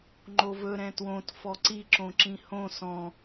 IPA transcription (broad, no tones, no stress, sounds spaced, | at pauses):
ŋ͡ǃ o v ɵ ɾ ɛ̃ t w õ t f ɔ ǀ i ǁ õ ǁ ĩ h õ s ɔ̃